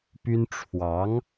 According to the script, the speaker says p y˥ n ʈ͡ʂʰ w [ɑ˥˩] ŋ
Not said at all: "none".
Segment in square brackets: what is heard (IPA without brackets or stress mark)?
ɑ˧˥